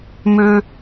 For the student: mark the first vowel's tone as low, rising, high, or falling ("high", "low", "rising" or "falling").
high